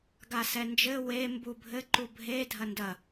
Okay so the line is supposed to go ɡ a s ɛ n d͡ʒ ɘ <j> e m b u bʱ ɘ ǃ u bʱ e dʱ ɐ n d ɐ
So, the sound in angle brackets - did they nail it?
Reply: no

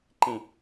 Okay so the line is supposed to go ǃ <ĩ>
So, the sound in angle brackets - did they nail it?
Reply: yes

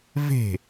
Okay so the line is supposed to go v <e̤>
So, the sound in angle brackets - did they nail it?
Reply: yes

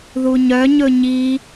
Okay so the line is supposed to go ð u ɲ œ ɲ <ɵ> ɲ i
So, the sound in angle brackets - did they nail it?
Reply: yes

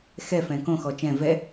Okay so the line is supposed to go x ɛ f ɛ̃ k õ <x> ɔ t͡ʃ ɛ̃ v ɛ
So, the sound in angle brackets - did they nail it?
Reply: yes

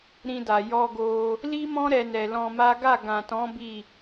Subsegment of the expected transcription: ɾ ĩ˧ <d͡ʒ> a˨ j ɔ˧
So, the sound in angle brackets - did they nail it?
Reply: no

